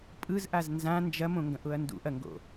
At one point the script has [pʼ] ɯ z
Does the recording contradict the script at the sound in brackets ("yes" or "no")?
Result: no